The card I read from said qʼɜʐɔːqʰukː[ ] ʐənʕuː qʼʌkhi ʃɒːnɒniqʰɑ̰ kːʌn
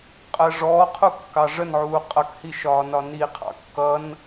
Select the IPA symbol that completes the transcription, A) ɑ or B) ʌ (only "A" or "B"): A